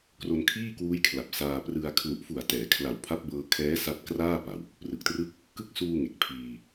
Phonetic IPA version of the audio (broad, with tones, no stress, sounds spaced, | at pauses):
k r o˧ n kʰ iː˥˩ k w uː˦˥ j kʰ l a˨˩ p̚ s aː˧ p r ɯ˧ a̯ kʰ l u˨˩ ʔ f u˨˩ a̯ t ɛː˩˦ kʰ l a˨˩ w pʰ a˦˥ p̚ b ɤː˧ kʰ ɛː˦˥ s a˦˥ t̚ k r aː˥˩ p a˨˩ w | p r ɯ˨˩ k̚ t r ɯ˥˩ k̚ | k ɯ˦˥ k̚ s uː˧ ŋ e˨˩ k̚ pʰ iː˧